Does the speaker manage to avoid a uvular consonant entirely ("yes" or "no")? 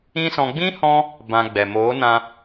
yes